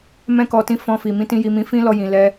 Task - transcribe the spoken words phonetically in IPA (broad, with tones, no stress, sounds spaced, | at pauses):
m ɛ̃˧ k ɔ˨ t ĩ˨˦ f ɔ̃˧ f i˨ m ĩ˧ t ĩ˦ j i˧ m ĩ˧ f ĩ˦ l ɔ˧ j ĩ˨ l ɛ˧